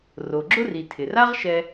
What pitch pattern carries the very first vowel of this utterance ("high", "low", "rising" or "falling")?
low